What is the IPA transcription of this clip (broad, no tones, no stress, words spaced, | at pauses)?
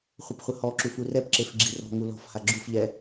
χʷəpχʷəhɔǁuf urɛpǁef ɡ͡ǁirɔ̤ŋu lɔ̤fha ɡ͡ǁufʎɛ